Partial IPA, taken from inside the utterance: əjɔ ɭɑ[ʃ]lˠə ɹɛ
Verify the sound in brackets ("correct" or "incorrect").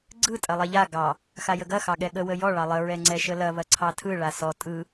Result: incorrect